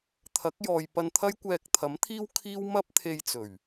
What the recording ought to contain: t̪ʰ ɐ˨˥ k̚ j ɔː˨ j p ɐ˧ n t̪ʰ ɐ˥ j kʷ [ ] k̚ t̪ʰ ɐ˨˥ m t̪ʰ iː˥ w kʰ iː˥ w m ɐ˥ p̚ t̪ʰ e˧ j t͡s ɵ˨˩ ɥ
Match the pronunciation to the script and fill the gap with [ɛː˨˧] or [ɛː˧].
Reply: ɛː˧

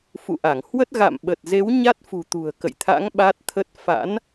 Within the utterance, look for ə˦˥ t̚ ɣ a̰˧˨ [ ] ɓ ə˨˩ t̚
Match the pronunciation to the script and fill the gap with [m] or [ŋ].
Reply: m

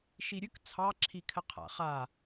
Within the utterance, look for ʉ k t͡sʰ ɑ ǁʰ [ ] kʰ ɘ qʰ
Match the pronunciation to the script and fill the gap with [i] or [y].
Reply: i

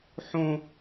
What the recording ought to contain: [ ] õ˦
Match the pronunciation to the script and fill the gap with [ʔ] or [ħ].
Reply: ħ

